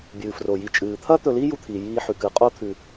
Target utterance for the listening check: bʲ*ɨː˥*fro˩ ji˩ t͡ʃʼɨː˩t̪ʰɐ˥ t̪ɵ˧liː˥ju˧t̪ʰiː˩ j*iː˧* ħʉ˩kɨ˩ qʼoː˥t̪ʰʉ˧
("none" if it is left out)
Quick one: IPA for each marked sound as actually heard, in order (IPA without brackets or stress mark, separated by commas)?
ɨː˩, iː˧